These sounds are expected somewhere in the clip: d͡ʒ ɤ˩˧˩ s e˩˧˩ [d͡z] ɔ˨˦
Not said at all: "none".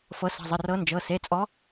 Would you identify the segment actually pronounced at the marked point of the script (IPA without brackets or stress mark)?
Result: t͡sʼ